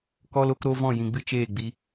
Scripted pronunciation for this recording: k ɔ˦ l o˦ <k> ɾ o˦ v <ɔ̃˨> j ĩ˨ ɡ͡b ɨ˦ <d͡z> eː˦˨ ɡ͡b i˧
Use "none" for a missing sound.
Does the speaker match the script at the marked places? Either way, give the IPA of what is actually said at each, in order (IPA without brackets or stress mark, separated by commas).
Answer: k, ɔ̃˦˨, t͡ʃ